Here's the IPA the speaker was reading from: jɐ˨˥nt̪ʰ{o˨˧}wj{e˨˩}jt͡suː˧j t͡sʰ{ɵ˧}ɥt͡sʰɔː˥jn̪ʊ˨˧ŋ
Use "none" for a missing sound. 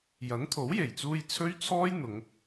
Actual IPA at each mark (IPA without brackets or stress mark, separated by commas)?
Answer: o˨˥, e˨˩, ɵ˥